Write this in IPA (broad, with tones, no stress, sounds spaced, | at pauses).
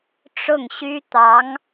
ʈ͡ʂ ʊ˥˩ ŋ ɕ y˥ t̪ ɑ˧˥ ŋ